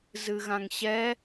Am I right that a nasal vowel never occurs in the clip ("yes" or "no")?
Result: no